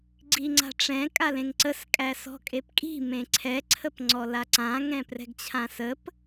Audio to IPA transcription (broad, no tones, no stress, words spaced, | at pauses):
ɡ͡ǀiŋ͡ǀa̤ʈ͡ʂɛ̃ kʼalẽŋǀəs kʼæsɔ̤kʼepkʼi̤ mẽǀʰɛ ǀʰəpŋ͡ǀɔlaǀã ŋɛ̃prɛ̤ɡt͡ɕʰãsəp